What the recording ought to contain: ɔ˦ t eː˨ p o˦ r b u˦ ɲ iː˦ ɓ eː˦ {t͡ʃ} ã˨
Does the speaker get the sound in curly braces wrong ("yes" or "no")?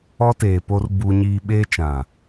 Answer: no